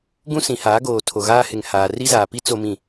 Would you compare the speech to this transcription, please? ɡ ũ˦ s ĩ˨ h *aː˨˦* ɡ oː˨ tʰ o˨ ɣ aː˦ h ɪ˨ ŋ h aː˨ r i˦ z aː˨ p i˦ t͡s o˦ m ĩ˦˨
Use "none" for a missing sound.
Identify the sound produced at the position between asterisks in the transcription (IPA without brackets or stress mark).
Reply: aː˨˦